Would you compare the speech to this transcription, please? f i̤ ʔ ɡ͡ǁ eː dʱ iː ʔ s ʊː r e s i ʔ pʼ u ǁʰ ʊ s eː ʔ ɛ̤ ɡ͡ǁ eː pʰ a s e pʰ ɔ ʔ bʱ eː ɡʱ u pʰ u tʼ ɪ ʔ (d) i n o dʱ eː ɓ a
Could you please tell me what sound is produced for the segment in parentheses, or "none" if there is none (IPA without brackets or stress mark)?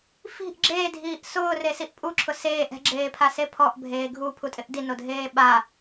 d